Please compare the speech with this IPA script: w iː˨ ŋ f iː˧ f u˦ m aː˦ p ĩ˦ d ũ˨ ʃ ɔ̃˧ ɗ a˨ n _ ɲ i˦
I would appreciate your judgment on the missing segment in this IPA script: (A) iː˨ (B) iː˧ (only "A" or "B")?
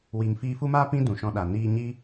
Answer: B